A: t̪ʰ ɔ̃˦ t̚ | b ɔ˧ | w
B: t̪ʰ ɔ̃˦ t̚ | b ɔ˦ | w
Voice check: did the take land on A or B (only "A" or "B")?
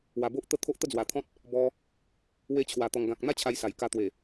A